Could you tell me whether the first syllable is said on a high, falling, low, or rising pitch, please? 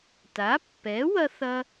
rising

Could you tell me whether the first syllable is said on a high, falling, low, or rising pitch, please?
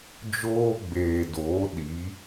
high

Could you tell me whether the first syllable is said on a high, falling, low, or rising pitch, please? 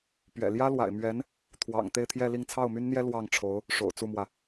low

